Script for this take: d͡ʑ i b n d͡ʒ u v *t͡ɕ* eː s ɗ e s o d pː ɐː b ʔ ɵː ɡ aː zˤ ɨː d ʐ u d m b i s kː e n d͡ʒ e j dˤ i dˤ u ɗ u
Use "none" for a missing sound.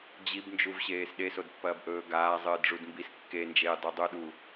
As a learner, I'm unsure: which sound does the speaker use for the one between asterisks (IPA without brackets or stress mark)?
ɕ